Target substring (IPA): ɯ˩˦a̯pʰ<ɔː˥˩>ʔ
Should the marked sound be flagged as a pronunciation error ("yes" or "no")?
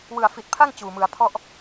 yes